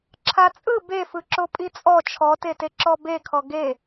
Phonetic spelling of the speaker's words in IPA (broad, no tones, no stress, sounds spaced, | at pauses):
ǁʰ a t͡sʼ ɯ b e f ɯ ǁ o pʼ i t͡sʼ ɔ t͡ʃʰ ɔ t e t e ǁ ɔ b e kʰ ɔ ɡ e